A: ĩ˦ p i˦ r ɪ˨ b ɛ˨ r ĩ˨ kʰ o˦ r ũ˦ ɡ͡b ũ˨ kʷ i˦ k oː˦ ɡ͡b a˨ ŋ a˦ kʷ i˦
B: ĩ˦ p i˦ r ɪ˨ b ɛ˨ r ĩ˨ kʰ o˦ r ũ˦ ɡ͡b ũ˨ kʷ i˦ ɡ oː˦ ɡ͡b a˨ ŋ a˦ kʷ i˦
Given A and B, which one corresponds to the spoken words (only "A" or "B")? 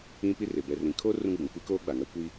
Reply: A